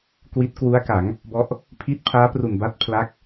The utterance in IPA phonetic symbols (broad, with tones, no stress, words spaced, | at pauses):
kwi˦˥t̚kwu˦˥a̯ka˩˦ŋ | bɔ˦˥ʔ | pʰi˦˥t̚ pʰaː˦˥pru˨˩nba˦˥t̚pʰla˦˥k̚